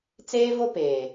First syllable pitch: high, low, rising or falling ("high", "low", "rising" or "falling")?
high